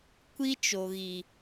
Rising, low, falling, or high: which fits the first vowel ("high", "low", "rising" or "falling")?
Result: high